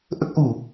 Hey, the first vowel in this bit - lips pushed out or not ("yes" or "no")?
no